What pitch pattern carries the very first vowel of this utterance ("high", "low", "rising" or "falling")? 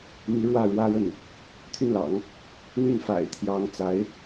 rising